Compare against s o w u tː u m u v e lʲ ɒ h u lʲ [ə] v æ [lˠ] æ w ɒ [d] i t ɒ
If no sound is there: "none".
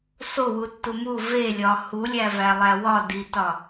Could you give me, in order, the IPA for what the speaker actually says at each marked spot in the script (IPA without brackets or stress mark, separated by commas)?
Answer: æ, lˠ, d